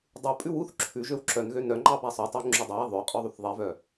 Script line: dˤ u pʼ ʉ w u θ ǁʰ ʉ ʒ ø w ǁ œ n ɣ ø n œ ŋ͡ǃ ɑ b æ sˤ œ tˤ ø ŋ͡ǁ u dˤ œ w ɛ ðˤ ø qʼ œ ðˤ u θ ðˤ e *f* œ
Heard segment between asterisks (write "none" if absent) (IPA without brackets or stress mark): v